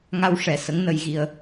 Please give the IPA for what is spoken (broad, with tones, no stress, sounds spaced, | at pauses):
ŋ a˧ w ʂ ɛ˨˩ s ə˧˥ ŋ n ə˧ j ɣ i˧ ə̯